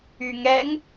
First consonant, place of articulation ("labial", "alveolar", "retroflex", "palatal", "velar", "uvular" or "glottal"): velar